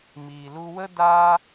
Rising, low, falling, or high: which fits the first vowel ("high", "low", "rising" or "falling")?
low